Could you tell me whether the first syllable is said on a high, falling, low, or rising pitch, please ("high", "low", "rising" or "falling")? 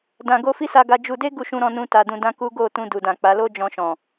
low